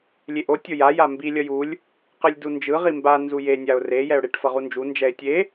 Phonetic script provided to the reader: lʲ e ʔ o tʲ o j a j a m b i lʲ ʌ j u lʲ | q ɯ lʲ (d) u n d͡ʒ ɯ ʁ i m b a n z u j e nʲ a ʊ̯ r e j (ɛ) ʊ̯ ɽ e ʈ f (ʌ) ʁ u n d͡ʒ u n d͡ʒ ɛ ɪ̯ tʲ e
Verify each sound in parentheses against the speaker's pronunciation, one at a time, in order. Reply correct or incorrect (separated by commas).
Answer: correct, correct, correct